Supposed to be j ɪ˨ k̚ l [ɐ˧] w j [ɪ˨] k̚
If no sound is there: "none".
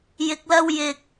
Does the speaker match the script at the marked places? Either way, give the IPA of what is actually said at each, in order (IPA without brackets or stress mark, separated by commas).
ɐ˧, ɪ˨